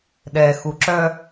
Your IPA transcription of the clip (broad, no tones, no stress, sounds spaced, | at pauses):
ɗ ɛ x u ǁ œ